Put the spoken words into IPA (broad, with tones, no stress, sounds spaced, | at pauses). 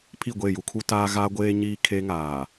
pʰ i˦˨ ɡʷ e˦˨ j u˦ kʰ u˦ t aː˦ ɣ aː˦ ɡʷ eː˦ ɲ iː˦ kʰ e˦ ŋ aː˨